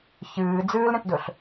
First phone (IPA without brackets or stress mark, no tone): ç